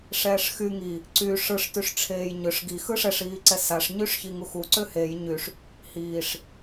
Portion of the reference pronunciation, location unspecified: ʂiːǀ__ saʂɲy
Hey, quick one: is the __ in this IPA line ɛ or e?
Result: ɛ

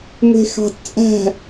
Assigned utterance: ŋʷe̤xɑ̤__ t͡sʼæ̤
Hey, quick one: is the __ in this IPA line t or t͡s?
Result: t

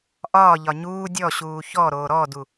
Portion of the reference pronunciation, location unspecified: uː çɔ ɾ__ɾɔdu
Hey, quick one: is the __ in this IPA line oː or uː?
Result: oː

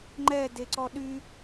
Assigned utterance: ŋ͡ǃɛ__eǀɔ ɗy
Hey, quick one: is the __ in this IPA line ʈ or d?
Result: d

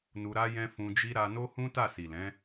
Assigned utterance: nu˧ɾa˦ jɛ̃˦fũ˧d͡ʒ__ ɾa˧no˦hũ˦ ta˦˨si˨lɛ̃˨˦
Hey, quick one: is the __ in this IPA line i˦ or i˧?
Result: i˦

